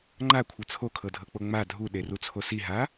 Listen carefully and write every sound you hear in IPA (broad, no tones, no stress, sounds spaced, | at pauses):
ŋ͡ǃ a kʷʰ ɤ t͡sʰ o kʰ ɤ dʱ ɤ k͡p o ŋ͡m a dʱ u ɗ e r u t͡sʰ o s i ɦ a